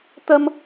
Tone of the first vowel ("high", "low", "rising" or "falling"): high